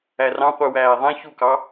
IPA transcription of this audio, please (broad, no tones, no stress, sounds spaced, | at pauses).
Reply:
æ r ɑ̃ qʷ ɯ w æː ðˤ ẽ ç u k ɑ